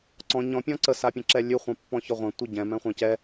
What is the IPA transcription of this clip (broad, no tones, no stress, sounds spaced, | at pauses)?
ǀ ɔ̃ ɲ ɔ̃ pʲ ɔ̃ ǀ ə s a pʲ ə̃ ǁ ɛ lʲ ʉ χʷ ã pː ɔ̃ ç ɔ ʁʷ ɛ̃ tʷ ɛ ɟ ɛ̃ m ɛ̃ χʷ ã c ɛ